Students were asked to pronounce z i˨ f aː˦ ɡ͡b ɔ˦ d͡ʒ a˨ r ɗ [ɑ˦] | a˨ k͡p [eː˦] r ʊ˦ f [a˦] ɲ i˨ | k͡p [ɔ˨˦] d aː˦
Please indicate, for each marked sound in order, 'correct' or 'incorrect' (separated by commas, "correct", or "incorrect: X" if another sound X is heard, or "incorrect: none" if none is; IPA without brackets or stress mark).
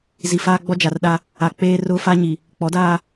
incorrect: a˦, correct, correct, correct